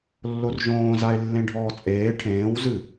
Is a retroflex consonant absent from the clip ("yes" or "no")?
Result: no